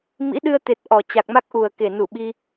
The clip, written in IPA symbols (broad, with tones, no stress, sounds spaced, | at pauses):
m ḭ˧˥ ɗ ɨ˧ ə̯ t̪ e˨˩ t̚ ʔ ɔ˨˩ t͡ɕ a˨˩ k̚ m a˦˥ k̚ ʔ u˨˩ ə̯ k e˨˩ n u˧˩ ɓ i˧